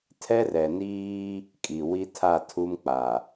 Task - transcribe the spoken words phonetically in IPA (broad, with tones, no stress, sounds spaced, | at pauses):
tʰ ɛ˦ r ɛ˨ n iː˦ | kʼ i˨ w i˦ tʰ a˦˨ tʰ u˦ m k͡p a˨